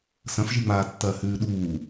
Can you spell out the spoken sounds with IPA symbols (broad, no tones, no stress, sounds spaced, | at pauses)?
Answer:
s ɐ̃ f ʒ i ŋ͡m aː tː ɐː h ʉː ɗ uː